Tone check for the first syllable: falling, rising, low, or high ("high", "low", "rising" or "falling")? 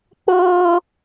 high